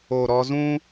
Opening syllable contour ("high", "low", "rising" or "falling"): low